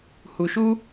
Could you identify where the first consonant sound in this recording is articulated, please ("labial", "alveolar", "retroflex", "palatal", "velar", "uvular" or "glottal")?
glottal